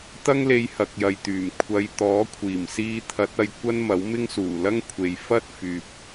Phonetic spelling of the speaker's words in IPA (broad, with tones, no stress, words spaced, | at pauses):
t̪ɐ˥ŋle˧jhɐ˨k̚ jɐ˨jt̪yː˨˩m kʷʰɐ˨˧j t̪ɔː˨˥kʷʰiː˨˩msiː˧ t̪ʰɐ˨˥t̚ɐ˧j kʷɐ˥nmɐ˨˥w mɪ˥ŋsuː˨˩lɐ˥ŋkʷʰe˨j fɐ˥t̚fyː˨p̚